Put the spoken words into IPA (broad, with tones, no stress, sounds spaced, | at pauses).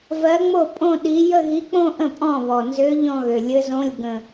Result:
v ɜ˧˥ ŋ͡m o˥˩ pʼ õ˥˧ ɗ i˧˥ j ə˥˧ ɣ i˧˥ k͡p õ˥˧ ʔ ə̃˥˩ pʼ ɔ̃˥˩ β ɔ˨˩ n z ø˧˥ ʎ ɔ̃˥˧ ɣ ø˨˩ lʲ ɘ˧˥ z õ˧˥˧ lʲ ɡ ə̃˨˩